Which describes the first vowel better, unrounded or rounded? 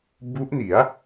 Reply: rounded